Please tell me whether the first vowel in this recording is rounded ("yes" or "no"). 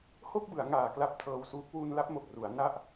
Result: yes